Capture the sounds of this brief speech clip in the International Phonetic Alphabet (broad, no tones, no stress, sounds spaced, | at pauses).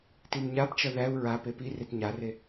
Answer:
t i m ɲ a p t͡ʃ ʌ ð æ u̯ ɹ a p e p i r e t ɲ a r e